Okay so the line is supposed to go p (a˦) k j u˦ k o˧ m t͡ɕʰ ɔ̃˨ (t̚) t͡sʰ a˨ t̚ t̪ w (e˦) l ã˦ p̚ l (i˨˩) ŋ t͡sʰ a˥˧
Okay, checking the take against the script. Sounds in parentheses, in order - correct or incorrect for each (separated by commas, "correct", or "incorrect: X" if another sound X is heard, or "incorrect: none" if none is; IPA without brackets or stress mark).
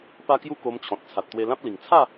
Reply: correct, correct, incorrect: e˧, correct